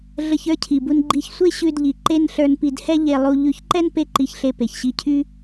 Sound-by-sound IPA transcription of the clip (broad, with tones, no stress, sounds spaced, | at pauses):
ɮ ə˧ ç ə˞˥ cʰ i˩ b u˧ n ɡ͡ǃ i˧ ç sʷ e˥ ɕ ʉ˧ d ʎ i˩ ǃ e˥ n ɬ ə˞˧ n p i˧ d h ɛ˥ ʎ e˧ lˠ u˧ ʎ ʉ˧ ç ǃ ɛ˥ n p e˥ ǃ i˧ ç ɬ e˧ p e˩ ç ɕ i˧ cʰ y˥